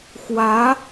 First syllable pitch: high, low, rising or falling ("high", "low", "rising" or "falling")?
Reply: rising